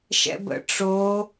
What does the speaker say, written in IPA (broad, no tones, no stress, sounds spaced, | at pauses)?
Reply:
ʃ ɛ̰ b ə̰ ʈ͡ʂ o